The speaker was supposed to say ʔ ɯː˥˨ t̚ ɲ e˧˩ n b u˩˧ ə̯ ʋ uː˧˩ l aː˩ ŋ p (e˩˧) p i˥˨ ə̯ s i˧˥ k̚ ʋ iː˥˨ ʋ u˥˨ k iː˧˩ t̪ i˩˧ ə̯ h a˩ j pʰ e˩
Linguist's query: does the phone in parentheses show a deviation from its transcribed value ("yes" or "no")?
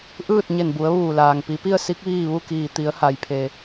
yes